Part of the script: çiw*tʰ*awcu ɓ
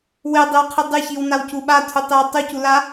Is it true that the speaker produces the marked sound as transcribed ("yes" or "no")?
no